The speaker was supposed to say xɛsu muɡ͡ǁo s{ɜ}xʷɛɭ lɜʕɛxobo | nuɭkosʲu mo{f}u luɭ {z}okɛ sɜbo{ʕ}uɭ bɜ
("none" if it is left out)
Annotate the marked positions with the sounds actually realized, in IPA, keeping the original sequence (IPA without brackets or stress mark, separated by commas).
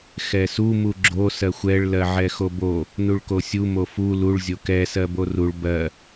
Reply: ɜ, f, zʲ, r